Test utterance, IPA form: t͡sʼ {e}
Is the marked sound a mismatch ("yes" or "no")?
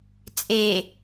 no